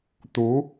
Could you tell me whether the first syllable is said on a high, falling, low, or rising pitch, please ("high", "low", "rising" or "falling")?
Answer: rising